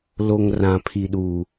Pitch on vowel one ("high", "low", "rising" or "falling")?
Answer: low